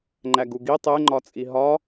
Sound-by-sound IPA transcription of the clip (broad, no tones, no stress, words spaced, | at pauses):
ŋ͡ǃæɡuɡi tˤeŋ͡ǃɒt͡sʼi ɦɒ